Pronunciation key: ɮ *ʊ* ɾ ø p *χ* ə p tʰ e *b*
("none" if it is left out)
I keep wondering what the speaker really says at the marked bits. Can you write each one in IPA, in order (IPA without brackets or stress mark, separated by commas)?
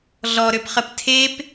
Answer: ɔ, χ, p